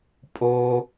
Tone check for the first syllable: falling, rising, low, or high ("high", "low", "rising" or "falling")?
high